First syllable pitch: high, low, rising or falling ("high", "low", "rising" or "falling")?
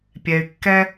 low